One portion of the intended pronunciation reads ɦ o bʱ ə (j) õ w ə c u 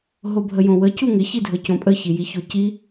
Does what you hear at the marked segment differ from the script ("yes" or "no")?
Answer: no